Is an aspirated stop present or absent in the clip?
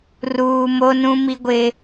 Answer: absent